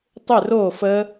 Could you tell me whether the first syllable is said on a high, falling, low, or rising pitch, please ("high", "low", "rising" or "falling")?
falling